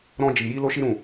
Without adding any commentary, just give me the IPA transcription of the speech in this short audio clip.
ɾ ɔ̃˧ d͡ʒ i˨ j i˧ l o˧ ʃ i˦ ɾ ũ˦˨

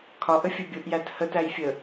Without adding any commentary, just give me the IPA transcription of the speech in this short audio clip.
kʰ ɒ ʔ ə fʲ ə bʲ ʊ ʔ j æ t h ə t æ j fʲ ə

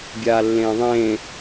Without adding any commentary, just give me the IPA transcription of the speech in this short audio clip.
bʲ aː lː ẽː ðˤ ẽː

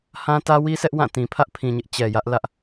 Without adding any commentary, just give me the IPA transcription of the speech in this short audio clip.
h ã˦ t ä˦ w i˦ s ɛ˦ ʔ w ã˦˨ t ĩ˨ pʰ ä˦ ʔ pʰ ĩ˨ ɲ ɪ˦ ʔ t͡ɕ ɛ˨ j ä˦ ʔ l ä˦ ʔ

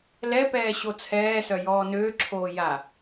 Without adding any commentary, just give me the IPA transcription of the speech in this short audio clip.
l ɛ p ɛː ɕ o t͡sʰ ɛː s œ j ɔː n øː ǁʰ oː j a

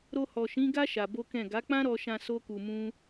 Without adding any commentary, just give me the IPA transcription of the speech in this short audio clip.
ɾ o˧ h ɔ˨ ʃ ĩ˨˦ ɡ a˦ ʃ a˧ b o˦ k ɛ̃˦˨ ɡ a˨˦ k͡p ã˦ ɾ ɔ˧ ʃ ã˧ s o˦ k u˧ m ũ˦

